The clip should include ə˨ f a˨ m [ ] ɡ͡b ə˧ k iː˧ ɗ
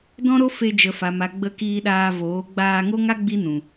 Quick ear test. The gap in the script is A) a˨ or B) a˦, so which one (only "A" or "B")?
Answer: A